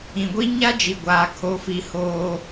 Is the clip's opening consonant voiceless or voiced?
voiced